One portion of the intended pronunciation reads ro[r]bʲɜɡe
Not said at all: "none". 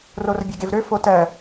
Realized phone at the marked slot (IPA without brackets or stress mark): r